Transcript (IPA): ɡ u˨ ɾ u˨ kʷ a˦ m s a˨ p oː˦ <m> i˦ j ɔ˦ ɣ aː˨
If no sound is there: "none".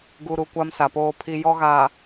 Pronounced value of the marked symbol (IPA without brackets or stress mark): pʰ